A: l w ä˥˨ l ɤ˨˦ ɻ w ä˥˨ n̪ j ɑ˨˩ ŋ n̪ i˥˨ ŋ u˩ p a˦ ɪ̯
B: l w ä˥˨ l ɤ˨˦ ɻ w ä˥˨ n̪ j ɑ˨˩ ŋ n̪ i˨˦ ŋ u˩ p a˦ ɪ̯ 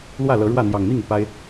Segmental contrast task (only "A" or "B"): A